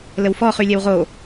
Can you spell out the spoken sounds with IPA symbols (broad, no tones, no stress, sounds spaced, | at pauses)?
l ə w f ɔ χ y lʲ ɛ w ʁ o